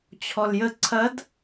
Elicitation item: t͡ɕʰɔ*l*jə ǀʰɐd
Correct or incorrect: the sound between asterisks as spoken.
correct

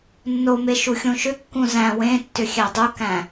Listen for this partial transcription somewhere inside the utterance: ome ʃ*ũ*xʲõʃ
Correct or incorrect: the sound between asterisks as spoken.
incorrect: u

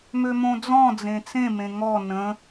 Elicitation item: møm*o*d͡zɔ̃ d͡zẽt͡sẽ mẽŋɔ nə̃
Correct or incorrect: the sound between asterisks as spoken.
incorrect: õ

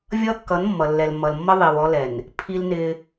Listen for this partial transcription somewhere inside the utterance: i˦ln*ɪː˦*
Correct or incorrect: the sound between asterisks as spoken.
correct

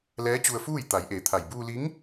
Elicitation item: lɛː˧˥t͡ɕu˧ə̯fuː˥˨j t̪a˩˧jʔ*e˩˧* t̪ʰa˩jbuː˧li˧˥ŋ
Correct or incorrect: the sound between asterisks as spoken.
correct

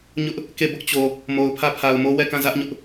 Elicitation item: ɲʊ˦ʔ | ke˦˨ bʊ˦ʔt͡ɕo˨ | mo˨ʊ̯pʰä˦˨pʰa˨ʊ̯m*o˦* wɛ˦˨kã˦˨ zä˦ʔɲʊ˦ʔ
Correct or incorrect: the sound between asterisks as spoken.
correct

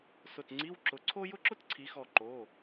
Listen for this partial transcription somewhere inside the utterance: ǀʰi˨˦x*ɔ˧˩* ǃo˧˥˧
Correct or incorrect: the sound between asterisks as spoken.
correct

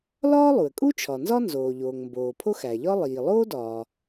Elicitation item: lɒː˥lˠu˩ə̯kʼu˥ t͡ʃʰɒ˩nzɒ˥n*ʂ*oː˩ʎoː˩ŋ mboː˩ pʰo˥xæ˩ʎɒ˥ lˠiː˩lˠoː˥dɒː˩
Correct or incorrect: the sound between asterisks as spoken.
incorrect: z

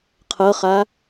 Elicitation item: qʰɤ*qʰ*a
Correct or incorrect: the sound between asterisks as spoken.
incorrect: χ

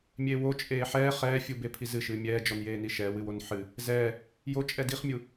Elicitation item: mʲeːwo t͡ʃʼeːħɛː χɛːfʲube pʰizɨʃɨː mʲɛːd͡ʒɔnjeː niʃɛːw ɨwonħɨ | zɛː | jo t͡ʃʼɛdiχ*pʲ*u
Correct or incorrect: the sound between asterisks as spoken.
incorrect: mʲ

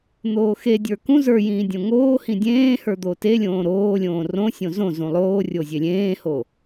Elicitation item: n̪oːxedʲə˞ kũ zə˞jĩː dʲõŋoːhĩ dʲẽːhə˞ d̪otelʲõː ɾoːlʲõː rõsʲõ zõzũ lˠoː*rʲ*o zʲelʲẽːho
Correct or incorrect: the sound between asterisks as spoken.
correct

